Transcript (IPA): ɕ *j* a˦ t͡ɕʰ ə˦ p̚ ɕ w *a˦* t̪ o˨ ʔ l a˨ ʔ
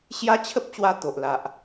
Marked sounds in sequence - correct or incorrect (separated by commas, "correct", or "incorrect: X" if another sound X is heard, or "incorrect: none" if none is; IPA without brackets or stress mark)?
correct, incorrect: a˧